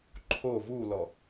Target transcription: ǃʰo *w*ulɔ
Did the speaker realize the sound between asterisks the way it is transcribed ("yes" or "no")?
no